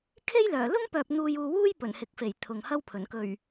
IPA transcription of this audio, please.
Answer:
kʰ e˥ j l œː˨˩ l ʊ˥ ŋ p œː˨ p̚ n̪ uː˧ j uː˧ w uː˥ j p ɵ˨˩ n h ɪ˨ k̚ f e˨˩ j t̪ʰ ʊ˨ ŋ h ɐ˥ w pʰ ɵ˨˩ n k ɵ˨˩ ɥ

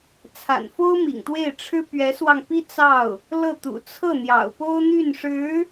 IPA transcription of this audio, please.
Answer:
t͡sʰ a̰˨˩ n f o˥ ʊ̯ m ḭ˨˩ ŋ t̪ w e˥˩ ɪ̯ ʈ͡ʂʰ ɻ̩˥ p ɥ ɛ˧˥ s w ɑ˧ ŋ p i˥ t͡s ɑ˥˩ ʊ̯ | l ɤ˥˩ t̪ ṵ˨˩ t͡sʰ ɤ˥˩ n̪ j ɑ̰˨˩ ʊ̯ p o˥ ʊ̯ n̪ y˥˩ n ʂ ɻ̩˧˥

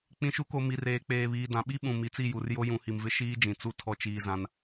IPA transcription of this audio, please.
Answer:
k͡p ĩ˨ ʃ u˨˦ k o˨ m i˨ r eː˨ k͡p eː˨ β iː˨ d ã˨ ɓ i˦ ɓ ũ˨ m i˨ t͡s i˦˨ j u˨ r j o˦ j ũ˨˦ h i˨ m v ɪ˦ ʃ iː˦ d͡ʒ ĩ˨ t͡s u˦ tʰ ɔ˦ t͡ʃ iː˦ z ã˦ n

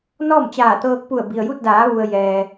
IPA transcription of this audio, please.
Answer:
n ɔː˥˨ m t͡ɕ aː˧˩ t̪ ɤː˧ k̚ p u˧˩ ə̯ b i˩ ə̯ j u˥˨ t̚ d aː˩˧ ʋ u˩ ə̯ j ɛː˩

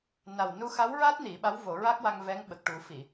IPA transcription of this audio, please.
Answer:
n a˨˩ w n u˧ x a˧˥ w ɹ a˦˥ t̚ n i˨˩˦ ɓ a˧˥ w v o˨˩˦ ɹ a˦˥ k̚ w a˧ ŋ v ɛ˧˥ ŋ ɓ ə˨˩ k̚ ʈ u˨˩˦ f i˨˩˨

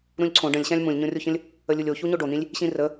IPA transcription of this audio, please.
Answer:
ɾ ũ lʲ ǀʰ õ ɖ ə̃ lʲ ɕ ã lʲ m ũ lʲ ɲ õ rʲ o ç ə̃ lʲ | ə lʲ u lʲ o ç u ɲ o ɖ o n̪ ĩ lʲ | ɕ ĩ r ə

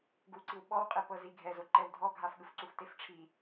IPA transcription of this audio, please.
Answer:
ɡ u ǀ i w ɓ ɔ w qʼ i p ɤ z i ɡʱ ɛ z o ǃ ɛ w dʱ ɔ ɡʱ a f ɠ ɯ f ǀ u f t e f ʈ͡ʂʰ i

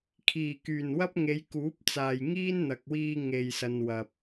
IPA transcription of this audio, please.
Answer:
kʰ iː˨˩ k yː˨˩ n w ɐ˥ p̚ ŋ e˨˧ j k uː˨˥ p̚ t͡s aː˨ j ŋ iː˥ n n̪ ɐ˨ k̚ w iː˧ ŋ e˨ j s ɐ˨ n w ɐ˨ p̚

